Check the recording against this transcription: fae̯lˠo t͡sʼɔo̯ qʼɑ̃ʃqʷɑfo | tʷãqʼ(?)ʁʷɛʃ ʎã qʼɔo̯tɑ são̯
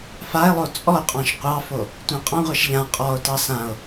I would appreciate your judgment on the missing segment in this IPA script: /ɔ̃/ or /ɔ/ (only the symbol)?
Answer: ɔ̃